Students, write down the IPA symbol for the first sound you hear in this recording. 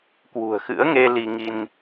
k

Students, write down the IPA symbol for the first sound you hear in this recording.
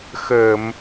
x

